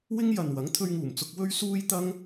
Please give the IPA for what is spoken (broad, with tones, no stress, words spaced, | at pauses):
wɪ˥ŋjɐ˨nwɐ˨˥ŋ t̪ʰɵ˧ɥŋuː˨˩mt͡sʊ˧k̚ wɵ˥ɥsuː˥j t̪ɐ˥ŋ